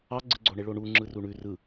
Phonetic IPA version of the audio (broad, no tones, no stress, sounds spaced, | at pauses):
ɑ ɡ͡ǀ ɯ ɡ͡ǀ o ɳ e ɭ o ɳ u ŋ͡ǁ ɯ r u ɳ ʉ r ɯ